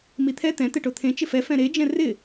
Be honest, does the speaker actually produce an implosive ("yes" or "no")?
no